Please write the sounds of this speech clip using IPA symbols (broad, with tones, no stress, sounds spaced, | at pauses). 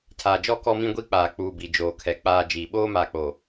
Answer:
tʰ aː˨ d͡ʒ ɔ˦ k ɔ˦ m ĩ˦ ɡʷ i˦ k͡p aː˨ k͡p uː˨ b i˨ d͡ʒ oː˨ kʰ ɛ˨ k͡p aː˨ d͡ʒ iː˨ ɓ oː˦ m aː˨ k͡p oː˨